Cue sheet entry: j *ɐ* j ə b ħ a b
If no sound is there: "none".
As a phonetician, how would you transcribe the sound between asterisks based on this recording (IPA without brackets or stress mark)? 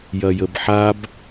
ɐ